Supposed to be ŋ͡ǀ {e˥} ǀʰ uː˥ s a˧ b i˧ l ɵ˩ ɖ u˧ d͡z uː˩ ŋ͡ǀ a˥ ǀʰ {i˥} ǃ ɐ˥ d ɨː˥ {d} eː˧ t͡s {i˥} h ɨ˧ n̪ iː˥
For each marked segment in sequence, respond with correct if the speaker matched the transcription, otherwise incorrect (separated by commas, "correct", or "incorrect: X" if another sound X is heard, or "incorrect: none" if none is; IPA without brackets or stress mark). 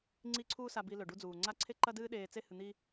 incorrect: i˥, incorrect: e˥, incorrect: ɗ, incorrect: e˥